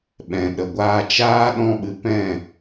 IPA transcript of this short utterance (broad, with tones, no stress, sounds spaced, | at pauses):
ɓ ɛ̃˨ ɗ ə˨ ɡʷ aː˧ t͡ʃ aː˦ ɗ ɔ̃˦ ɓ ɨ˧ p ɛ̃˦˨